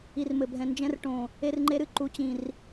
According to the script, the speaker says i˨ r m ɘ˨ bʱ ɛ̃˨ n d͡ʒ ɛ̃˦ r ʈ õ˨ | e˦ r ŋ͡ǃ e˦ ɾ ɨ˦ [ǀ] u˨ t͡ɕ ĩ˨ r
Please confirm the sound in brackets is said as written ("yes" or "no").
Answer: no